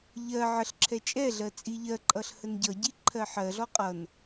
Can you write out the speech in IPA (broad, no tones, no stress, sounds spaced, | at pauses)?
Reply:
ʎ ɜ ʕ ə ɬ ǁʰ ɛ t͡ʃʼ ɛ ɮ ɜ t͡sʼ i ʎ ɜ ǃʼ ʌ ɬ h ə n ɟ ʌ ɟ i ǃʰ ɜ ħ ɜ ɮ ɔ qʼ ʌ n